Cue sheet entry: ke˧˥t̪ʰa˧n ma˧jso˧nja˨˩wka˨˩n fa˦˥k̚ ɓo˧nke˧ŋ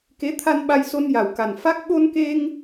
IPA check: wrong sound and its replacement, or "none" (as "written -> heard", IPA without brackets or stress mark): m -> ɓ